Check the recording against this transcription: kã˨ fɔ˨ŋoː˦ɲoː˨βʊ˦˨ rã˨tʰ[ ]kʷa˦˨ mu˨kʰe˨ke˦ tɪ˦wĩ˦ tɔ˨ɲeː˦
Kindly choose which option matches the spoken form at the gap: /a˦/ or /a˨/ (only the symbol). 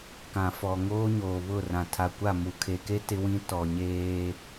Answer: a˨